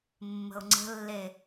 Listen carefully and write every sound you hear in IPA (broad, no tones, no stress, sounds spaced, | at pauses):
mː ə̤ ʊ̯ ŋ͡ǀ ə̤ lː e